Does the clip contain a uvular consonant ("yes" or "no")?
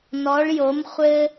yes